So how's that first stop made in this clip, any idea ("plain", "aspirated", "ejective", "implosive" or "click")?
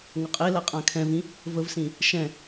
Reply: ejective